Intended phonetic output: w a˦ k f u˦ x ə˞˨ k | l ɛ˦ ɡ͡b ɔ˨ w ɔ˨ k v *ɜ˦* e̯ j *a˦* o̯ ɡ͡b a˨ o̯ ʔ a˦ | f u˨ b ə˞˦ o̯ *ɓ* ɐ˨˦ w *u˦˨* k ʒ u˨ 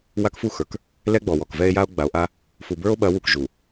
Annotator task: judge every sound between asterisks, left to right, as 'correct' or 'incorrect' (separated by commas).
incorrect, correct, correct, incorrect